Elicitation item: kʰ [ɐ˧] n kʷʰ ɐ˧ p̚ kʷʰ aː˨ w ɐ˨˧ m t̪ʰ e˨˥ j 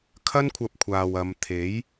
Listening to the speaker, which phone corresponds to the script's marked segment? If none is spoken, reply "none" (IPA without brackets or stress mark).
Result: ɐ˥